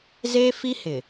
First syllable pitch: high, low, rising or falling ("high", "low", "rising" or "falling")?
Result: high